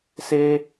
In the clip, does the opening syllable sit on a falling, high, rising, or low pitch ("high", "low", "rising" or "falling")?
high